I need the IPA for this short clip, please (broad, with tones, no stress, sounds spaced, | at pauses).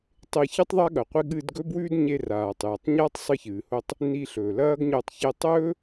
tˤ e˧ ç ɨ˥ tˤ ðˤ a˥ ɠ ɐ˩ qʷ i˧ ɠ ɨː˧ d ɡ ɵ˥ b w ʉː˥ d ɲ e˧ r aː˩ tˤ j ɐ˩ tˤ ɲ a˥ tˤ sˤ ɨ˧ ç ɨː˩ h o˧ tˤ | n i˧ ɬ ɵː˩ l ɐː˥ ɡ ɲ ɵ˧ tˤ ç e˧ tˤ ɵː˥